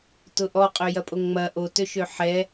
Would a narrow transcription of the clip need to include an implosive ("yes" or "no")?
no